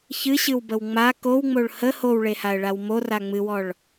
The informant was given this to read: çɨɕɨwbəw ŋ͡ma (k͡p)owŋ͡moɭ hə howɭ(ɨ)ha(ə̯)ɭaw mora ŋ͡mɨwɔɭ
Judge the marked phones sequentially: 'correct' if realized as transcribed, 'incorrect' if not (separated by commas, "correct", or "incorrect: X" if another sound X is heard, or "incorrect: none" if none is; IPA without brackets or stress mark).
incorrect: k, incorrect: e, correct